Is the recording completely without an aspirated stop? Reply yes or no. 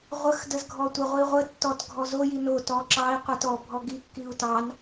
yes